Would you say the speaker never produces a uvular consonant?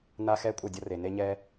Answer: yes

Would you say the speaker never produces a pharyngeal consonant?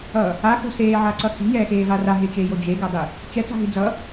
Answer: no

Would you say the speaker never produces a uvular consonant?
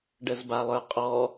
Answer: no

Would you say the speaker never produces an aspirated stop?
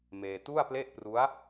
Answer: yes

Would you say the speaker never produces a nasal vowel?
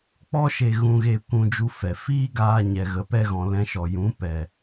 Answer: no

